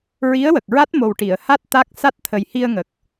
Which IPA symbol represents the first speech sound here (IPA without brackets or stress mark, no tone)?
ɹ